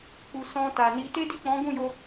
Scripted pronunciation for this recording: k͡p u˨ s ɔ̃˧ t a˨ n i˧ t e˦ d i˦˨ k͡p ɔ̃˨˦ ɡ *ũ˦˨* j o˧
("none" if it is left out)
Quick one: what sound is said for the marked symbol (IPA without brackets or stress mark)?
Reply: ũ˦˨